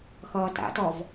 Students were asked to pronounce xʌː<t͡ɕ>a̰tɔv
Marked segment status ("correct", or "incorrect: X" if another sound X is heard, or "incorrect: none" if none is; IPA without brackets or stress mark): incorrect: t